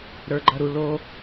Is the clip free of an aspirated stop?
yes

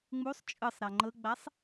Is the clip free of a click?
no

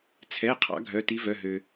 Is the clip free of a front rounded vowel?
no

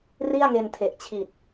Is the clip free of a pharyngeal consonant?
yes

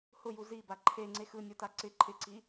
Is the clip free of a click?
no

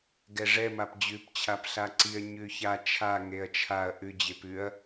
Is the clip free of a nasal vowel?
yes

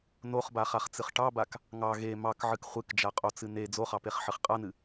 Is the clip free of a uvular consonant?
no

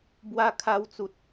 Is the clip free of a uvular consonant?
yes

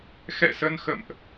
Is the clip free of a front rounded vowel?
yes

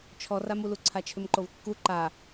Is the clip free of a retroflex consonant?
yes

